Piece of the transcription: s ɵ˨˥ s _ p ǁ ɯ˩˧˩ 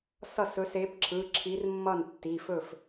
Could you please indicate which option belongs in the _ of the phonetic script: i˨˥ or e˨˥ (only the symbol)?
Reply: e˨˥